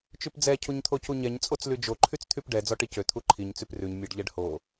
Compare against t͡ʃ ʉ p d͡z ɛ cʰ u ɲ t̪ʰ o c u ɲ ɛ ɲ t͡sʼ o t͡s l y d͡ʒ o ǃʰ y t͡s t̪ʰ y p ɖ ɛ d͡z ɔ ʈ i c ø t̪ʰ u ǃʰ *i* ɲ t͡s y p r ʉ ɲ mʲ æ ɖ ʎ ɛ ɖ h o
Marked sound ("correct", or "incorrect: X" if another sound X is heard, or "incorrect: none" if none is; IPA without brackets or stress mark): correct